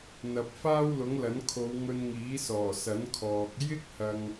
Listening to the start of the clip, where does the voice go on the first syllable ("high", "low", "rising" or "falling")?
low